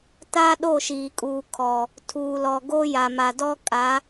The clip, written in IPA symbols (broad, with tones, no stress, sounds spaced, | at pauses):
t a˦ ɗ o˦˨ ʃ iː˨ kʼ uː˨ kʰ ɔ˨ | tʰ uː˨ l ɔ˨ ɡ o˦ j a˨ m a˨ d ɔ˦ kʼ a˨˦